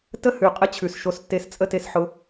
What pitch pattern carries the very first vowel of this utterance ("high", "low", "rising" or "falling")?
high